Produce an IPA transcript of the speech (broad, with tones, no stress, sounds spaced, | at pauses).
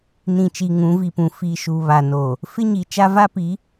n ĩ˨ t͡ʃ i˨ ŋ ũ˨˦ v i˨ p ũ˨ f i˨ ʃ u˨ β a˨ n o˨ | f ɪ˦ ɲ i˨ t͡ʃ a˦ v a˦ p i˨˦